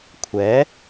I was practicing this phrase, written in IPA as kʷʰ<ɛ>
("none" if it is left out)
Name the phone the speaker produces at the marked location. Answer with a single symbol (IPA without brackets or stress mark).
ɛ